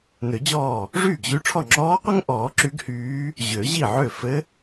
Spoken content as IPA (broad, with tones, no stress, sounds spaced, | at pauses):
n ø˨˩˦ d͡ʑ ɔː˥˩ | ʐ yː˥˩ ɡ ʑ y˧˥ ʈ͡ʂʰ ɔ˥˩ ŋ͡ǁ ɔː˧˥ qʷ ɛ˥ ŋ ʔ ɔː˨˩˦ ǁ y˧˥ ɡ h yː˧˥ | ʑ ø˨˩˦ ʑ i˥˩ ʕ ø˥˩ f ɘ˧˥